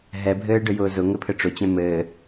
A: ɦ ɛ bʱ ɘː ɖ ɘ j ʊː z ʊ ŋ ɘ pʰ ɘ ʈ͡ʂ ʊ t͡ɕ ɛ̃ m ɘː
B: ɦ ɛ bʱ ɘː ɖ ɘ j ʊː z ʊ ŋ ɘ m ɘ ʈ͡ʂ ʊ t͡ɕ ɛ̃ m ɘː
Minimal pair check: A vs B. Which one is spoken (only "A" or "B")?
A